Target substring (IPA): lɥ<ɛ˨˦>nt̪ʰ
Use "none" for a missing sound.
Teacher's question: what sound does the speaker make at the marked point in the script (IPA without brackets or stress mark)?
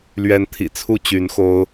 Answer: ɛ˨˦